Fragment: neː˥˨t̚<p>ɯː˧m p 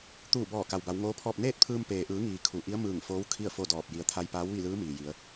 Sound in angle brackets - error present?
yes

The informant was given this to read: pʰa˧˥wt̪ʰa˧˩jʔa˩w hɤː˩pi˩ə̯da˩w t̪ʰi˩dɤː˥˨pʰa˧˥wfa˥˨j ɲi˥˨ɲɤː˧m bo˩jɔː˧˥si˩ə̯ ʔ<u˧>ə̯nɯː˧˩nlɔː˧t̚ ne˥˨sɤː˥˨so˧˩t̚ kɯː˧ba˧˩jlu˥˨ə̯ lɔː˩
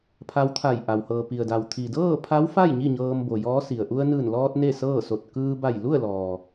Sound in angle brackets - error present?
no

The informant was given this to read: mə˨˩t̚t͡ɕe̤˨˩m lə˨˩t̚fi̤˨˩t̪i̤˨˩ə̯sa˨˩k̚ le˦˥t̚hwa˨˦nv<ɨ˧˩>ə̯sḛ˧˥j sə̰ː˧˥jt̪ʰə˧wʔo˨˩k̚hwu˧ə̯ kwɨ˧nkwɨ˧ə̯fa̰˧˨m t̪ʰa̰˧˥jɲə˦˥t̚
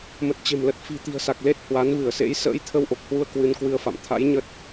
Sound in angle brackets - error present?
no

